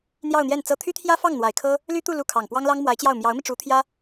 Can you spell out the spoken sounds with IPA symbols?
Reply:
n̪ j ɑ˥˧ ʊ̯ n̪ j ɛ˥˩ n t͡s ɤ˥ t̪ʰ y˥ t̪ʰ j ä˥ f ɑ˥˩ ŋ n̪ w a˨˩ ɪ̯ kʰ ɤ˥ | l y˥ t̪ u˥˧ l u˥˩ kʰ ɑ˨˩ ŋ p w ɑ˥ ŋ l ɑ˥ ŋ m w a˧˥ ɪ̯ t͡ɕ j ɑ˥˩ ʊ̯ m j ɑ˧˥ ʊ̯ m i˧ ʈ͡ʂ u˧˥ t̪ʰ j ä˥

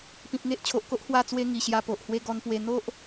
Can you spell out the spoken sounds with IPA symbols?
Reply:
p ĩ˨ p̚ ŋ e˦ ʔ t͡ɕʰ o˨ ʔ k o˦ ʔ h w a˥˧ t͡s w e˦ ŋ i˨˩ ɕ j a˧ p o˨ ʔ h w e˦ ɡ ɔ˧ n p w e˧ n̪ o˦ ʔ

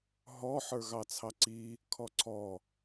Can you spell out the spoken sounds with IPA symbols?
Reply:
ɦ ɔ ħ ə˞ ɣ ɑ t͡sʰ ɑ ǀ i | kʰ ɔ ǀʰ ɔ

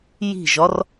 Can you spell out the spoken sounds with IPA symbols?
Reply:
j i̤ ʒ ɒ r

